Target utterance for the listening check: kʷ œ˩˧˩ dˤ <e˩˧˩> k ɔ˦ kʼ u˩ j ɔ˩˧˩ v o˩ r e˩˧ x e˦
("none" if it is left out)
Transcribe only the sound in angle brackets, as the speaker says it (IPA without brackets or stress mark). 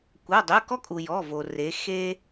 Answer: ø˩˧˩